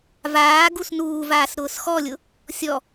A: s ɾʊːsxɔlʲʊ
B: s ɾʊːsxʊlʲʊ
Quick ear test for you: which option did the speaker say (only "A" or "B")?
A